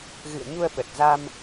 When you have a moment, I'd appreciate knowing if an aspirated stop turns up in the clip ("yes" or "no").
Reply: no